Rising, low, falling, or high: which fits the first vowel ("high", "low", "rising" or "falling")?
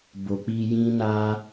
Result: low